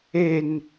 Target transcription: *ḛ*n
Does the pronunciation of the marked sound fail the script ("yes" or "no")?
yes